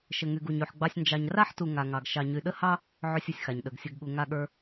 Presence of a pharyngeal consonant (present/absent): present